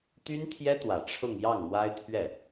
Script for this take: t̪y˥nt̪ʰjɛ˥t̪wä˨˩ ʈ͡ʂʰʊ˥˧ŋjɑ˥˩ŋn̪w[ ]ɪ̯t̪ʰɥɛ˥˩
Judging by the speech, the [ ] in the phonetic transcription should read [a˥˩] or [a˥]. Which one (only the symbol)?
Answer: a˥